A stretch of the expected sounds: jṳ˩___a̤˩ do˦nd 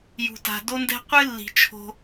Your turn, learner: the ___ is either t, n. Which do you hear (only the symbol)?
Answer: t